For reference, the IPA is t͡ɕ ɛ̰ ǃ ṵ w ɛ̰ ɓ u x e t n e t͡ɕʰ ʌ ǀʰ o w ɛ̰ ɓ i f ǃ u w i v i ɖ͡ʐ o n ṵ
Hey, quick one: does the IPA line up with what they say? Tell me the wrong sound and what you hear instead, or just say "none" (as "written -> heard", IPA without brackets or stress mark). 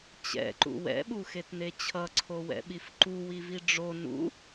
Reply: none